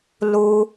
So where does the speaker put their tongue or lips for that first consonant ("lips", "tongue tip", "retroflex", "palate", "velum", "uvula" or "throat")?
tongue tip